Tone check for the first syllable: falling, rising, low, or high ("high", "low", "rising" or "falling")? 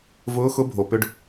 rising